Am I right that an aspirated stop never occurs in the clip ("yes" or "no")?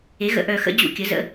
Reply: yes